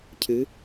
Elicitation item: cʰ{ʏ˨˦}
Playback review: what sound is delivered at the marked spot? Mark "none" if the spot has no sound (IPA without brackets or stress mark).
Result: ɨ˨˦